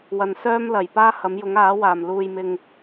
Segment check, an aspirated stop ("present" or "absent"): absent